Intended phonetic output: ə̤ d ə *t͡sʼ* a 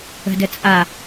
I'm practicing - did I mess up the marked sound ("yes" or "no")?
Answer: no